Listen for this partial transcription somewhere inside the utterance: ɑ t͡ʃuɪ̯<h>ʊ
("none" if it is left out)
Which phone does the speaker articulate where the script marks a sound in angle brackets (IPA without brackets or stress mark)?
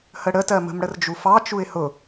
h